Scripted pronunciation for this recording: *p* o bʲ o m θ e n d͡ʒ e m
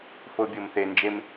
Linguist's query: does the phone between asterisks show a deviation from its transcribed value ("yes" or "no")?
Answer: yes